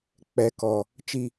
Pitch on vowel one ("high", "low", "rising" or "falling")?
low